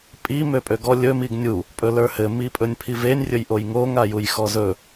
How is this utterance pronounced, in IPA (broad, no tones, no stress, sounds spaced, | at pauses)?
pʼ i m ø pʼ ø ɡ ɔ lʲ ɵ m i ɡ nʲ u | pʼ ɵ l ə˞ h ɘ m i pʼ ɵ nʲ pʰ i v e nʲ rʲ ɵ j ʔ o j ŋ o ŋ a j u j x ɔ z ɵ